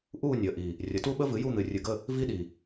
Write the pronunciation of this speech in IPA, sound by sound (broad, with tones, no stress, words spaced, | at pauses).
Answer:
ʔuː˦˨ nʲəː˨˩ʔi˨˩ | rʲə˩˥tu˦˥ɓə˦˥ vɨ˩˥ju˦˨n̪ɨ˨˩ rʲɨ˨˩ɡə˦˨ | vi˦˥ɗi˨˩